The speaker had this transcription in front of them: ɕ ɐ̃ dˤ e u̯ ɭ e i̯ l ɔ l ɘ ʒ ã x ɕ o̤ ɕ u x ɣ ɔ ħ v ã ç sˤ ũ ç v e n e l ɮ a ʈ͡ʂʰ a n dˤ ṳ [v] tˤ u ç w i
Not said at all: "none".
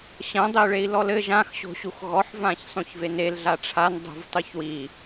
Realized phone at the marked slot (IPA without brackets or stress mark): v